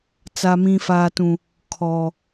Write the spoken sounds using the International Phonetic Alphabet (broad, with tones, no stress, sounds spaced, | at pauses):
t͡s a˨ m ĩ˨ f aː˨ t ũ˨ | kʰ ɔ˨